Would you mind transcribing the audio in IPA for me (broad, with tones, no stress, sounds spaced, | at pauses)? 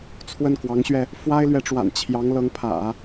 t͡sʰ w ə˥˩ n k w ɑ˧˥ ŋ ɕ ɥ ɛ˧ | f w a˥ ɪ̯ l ɥ ɛ˧˥ ʈ͡ʂ w a̰˨˩ n t͡ɕʰ j ɑ˧˥ ŋ l ɤ˧˥ ŋ pʰ ä̰˨˩˦